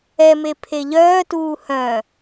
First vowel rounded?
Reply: no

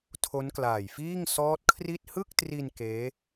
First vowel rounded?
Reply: yes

